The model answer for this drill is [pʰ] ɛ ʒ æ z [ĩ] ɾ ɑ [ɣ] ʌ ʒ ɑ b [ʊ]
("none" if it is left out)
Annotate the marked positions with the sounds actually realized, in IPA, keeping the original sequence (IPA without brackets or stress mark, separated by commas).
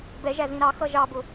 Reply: b, ĩ, x, ʊ